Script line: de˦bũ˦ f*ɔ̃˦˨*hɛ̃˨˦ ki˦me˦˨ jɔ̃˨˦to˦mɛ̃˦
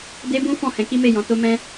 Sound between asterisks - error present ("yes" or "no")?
no